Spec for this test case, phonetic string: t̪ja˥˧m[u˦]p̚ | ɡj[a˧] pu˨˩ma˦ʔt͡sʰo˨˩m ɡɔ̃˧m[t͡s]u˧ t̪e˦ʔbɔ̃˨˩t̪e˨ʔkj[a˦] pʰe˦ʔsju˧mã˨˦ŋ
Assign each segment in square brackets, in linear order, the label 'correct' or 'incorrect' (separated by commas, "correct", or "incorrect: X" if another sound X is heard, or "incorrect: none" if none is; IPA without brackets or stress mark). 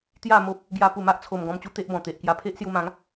incorrect: o˦, correct, incorrect: t͡ɕ, incorrect: a˧